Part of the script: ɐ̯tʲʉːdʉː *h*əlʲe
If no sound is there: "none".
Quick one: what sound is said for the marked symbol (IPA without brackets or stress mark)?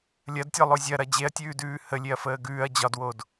h